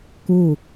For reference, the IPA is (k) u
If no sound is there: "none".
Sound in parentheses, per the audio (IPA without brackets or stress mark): k